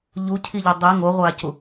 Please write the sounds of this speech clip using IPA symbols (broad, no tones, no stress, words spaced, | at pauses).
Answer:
ʎucʰiʎʏ dˤi ŋoʁʷacu